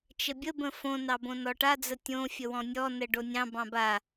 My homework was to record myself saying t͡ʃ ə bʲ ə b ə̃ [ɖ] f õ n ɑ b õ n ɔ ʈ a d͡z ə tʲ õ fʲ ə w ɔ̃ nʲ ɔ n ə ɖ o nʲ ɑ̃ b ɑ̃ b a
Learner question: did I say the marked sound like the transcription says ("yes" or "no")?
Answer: no